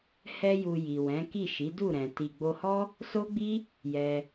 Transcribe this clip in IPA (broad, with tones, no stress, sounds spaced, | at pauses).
h ɛ˧ j u˨ j i˨ w ɛ̃˨˦ k i˦˨ ʃ i˨˦ d u˦˨ ɾ ɛ̃˨ t i˨ ɡ͡b o˧ h ɔ˦ | s o˦ ɡ͡b i˦ | j ɛ˧